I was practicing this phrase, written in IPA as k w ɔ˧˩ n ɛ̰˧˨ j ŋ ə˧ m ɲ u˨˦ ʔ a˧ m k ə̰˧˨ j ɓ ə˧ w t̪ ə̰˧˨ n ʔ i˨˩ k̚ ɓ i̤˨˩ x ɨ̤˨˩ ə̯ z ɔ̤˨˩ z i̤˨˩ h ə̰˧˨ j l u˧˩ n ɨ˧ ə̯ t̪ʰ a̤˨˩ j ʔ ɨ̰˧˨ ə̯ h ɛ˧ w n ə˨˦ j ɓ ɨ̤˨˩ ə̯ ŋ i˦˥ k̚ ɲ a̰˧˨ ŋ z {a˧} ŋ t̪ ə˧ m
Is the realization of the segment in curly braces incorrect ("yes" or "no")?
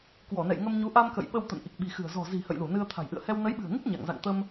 yes